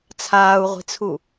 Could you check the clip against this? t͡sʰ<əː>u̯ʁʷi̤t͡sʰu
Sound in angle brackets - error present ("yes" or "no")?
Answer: yes